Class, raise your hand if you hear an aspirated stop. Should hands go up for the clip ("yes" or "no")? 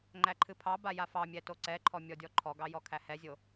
yes